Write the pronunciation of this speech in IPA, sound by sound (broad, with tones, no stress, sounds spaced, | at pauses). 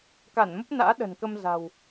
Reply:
k a˧˩ n m ə˦˥ p̚ n a̰ː˧˥ ɗ ə̤˨˩ n k ə˧ m z a̤˨˩ w